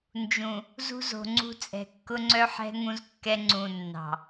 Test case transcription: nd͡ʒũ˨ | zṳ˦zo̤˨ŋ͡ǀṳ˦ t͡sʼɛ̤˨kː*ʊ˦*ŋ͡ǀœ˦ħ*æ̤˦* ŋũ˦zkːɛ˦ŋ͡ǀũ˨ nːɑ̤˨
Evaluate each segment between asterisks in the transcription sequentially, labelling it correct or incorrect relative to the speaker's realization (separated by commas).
correct, incorrect